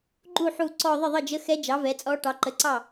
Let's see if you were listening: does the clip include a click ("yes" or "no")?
yes